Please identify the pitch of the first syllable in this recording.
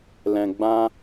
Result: low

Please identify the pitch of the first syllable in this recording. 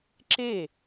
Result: falling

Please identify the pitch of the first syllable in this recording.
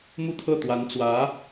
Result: falling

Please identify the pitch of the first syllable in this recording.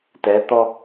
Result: rising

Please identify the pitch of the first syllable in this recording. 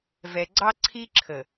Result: low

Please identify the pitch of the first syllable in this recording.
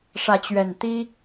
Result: rising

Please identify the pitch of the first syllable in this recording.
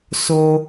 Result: low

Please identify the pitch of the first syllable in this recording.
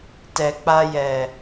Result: low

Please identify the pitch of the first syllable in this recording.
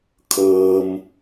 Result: low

